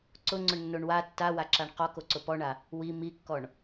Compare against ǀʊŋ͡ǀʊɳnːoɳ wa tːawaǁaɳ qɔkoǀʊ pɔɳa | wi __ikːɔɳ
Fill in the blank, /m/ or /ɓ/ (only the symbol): m